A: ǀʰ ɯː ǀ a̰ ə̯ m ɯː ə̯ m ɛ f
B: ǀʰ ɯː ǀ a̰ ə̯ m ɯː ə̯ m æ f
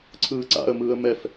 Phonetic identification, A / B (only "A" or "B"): A